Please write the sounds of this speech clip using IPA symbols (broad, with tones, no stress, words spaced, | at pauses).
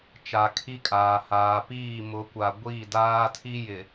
t͡ʃa˨kʰi˦kʼaː˨ haː˨ piː˦˨mʊ˨˦kʷa˨ ɡʷiː˦˨daː˦tʰi˦ jɪ˨